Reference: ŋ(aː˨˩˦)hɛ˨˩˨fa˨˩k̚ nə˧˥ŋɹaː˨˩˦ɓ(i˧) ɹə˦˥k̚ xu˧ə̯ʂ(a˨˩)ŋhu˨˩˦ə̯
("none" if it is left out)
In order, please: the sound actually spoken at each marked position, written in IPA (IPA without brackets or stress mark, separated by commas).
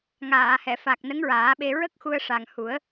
aː˨˩˨, e˧, a˨˩